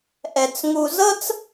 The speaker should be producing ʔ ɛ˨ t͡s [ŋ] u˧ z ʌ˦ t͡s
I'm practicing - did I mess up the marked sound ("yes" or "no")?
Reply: no